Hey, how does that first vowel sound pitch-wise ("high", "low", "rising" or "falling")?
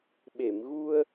low